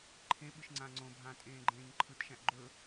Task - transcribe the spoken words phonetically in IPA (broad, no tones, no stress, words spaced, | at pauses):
ǃʰẽ ɓɯʃŋ͡ǀãːŋ͡ǀõbʱãː tʼẽːɡ͡ǃẽːɲǃʰɯtʃæ̃ʔ ɡ͡ǃɵ